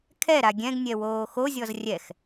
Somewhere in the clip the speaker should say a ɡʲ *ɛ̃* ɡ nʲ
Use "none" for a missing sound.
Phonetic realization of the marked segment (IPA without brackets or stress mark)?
ɛ̃